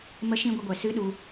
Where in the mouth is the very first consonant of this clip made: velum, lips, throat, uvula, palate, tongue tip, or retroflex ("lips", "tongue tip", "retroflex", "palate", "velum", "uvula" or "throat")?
lips